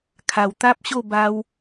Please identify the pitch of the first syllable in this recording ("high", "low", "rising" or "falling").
low